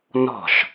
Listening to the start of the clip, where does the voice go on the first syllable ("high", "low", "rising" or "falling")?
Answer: falling